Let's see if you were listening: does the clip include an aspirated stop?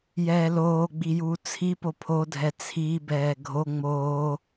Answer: yes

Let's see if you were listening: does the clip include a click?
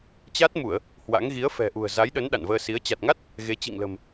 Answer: no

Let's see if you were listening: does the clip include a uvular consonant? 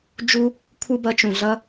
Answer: no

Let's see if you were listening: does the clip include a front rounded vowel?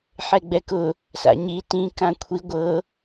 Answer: no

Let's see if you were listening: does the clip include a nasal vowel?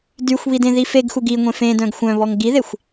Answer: yes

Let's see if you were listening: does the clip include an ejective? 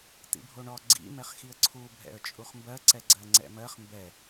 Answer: yes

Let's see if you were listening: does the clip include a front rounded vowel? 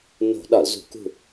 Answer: no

